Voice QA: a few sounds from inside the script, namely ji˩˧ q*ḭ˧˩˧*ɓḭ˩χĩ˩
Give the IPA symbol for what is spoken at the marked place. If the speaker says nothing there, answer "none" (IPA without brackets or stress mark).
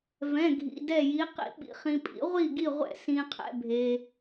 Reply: ḭ˧˩˧